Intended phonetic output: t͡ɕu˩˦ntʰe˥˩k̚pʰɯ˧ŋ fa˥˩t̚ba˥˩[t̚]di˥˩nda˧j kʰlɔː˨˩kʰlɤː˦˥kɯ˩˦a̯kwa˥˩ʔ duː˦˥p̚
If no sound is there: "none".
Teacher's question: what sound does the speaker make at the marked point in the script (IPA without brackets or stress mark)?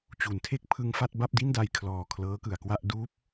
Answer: p̚